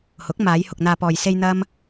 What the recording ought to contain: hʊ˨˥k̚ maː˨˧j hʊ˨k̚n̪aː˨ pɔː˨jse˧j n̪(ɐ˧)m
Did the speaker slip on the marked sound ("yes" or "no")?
yes